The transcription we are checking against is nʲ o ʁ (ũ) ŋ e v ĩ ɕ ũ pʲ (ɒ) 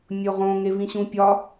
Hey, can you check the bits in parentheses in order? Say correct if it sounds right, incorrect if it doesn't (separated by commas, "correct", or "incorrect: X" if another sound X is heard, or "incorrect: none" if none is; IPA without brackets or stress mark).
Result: incorrect: õ, correct